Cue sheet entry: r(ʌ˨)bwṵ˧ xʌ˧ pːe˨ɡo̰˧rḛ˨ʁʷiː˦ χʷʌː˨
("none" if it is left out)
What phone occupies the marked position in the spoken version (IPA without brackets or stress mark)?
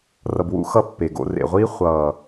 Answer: ʌ˨